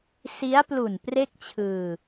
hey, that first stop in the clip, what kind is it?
plain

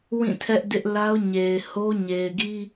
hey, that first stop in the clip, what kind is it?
aspirated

